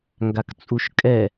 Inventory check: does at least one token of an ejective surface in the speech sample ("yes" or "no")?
yes